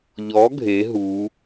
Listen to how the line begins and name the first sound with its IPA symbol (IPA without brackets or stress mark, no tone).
ʎ